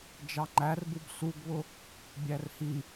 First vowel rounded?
no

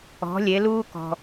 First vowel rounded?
yes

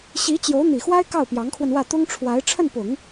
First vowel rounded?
no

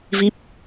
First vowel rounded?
no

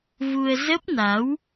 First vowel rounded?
yes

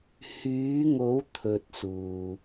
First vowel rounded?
yes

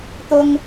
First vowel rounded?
yes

